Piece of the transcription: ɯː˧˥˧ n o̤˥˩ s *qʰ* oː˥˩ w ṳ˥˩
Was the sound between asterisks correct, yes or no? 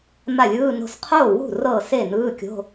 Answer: yes